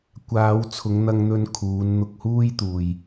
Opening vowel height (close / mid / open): open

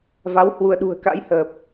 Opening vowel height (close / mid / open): open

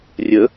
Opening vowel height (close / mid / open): mid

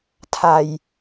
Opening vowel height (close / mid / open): open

